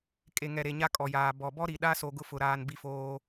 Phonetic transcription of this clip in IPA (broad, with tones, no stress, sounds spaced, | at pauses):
kʼ e˨ ŋ ɛ˨ ɾ e˨ ɲ a˦ kʼ ɔ˨ j aː˨ b ɔ˨ b ɔ˦ ɾ i˨ ɗ a˦ s o˦ ɡ ʊ˦ f ʊ˨ ɾ aː˦ n b i˦ f oː˦